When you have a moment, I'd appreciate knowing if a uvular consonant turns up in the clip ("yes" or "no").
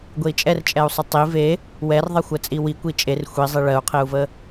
yes